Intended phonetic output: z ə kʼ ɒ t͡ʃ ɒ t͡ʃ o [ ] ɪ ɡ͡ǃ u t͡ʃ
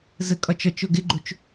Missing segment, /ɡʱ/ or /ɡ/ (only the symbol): ɡ